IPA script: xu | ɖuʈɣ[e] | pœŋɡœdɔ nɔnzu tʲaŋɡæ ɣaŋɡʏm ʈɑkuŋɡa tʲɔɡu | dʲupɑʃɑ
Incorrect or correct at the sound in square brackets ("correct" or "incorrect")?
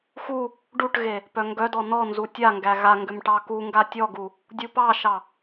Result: correct